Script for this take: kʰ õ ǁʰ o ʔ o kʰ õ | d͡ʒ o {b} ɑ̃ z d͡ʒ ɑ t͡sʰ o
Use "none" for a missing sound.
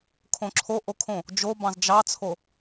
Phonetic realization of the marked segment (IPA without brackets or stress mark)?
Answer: b